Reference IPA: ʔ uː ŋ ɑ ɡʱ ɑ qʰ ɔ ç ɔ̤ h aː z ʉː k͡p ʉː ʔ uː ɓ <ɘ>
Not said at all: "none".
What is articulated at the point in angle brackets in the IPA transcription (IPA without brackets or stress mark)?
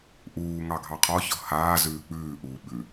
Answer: ʉ